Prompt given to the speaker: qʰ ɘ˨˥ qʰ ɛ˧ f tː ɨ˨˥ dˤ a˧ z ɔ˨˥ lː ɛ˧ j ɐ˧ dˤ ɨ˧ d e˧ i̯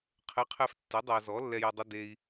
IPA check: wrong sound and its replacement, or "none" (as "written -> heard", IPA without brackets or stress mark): none